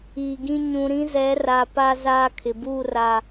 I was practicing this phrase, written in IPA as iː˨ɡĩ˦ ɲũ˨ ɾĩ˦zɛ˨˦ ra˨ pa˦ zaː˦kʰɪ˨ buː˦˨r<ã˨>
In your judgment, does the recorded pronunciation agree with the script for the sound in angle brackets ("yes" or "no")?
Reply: no